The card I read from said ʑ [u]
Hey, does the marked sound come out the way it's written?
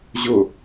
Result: no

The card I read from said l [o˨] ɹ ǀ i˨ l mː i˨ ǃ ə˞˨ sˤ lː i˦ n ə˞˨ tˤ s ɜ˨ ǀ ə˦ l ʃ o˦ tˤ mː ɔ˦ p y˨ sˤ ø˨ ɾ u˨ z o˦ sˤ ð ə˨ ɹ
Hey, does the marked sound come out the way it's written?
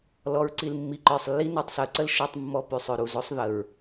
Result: no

